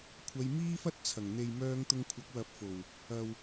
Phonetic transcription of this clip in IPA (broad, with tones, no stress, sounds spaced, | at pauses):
kʷʰ ɐ˧ j m iː˥ f ɐ˥ t̚ t͡sʰ ɐ˨˩ ŋ n̪ e˨ j m œː˧ ŋ t̪ ʊ˧ ŋ kʷʰ ɐ˨˥ k̚ w ɐ˨ p̚ f o˨˩ w | ɐ˨ w